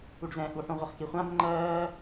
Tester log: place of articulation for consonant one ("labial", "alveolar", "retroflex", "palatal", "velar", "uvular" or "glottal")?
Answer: retroflex